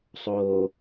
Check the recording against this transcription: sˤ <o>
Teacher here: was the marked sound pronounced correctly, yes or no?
no